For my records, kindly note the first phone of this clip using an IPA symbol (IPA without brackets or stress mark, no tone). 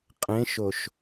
qʼ